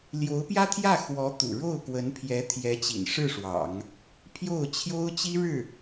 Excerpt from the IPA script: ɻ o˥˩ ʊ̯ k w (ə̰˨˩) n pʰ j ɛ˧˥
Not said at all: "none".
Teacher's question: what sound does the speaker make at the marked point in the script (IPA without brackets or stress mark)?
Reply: ə˧˥